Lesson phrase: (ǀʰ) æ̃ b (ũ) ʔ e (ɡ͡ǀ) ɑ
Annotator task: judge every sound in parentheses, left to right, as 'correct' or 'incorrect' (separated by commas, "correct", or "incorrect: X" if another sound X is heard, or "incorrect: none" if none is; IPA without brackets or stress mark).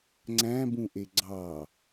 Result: incorrect: ŋ͡ǀ, correct, correct